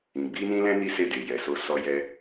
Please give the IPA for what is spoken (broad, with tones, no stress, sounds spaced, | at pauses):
ĩ˨ ɡ͡b i˧ n ĩ˧ l ɛ̃˧ n i˦ s e˦˨ d e˨ j ɛ˨ s o˧ s ɔ˧ j ɛ˧